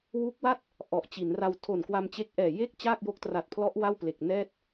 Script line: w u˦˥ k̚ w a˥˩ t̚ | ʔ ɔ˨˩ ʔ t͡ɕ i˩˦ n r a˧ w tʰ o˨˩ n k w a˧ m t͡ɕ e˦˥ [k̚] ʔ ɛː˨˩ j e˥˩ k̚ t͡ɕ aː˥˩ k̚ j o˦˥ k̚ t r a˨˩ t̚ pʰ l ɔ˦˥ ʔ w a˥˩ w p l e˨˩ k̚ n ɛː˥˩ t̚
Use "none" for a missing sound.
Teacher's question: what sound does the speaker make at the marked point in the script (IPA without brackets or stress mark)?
k̚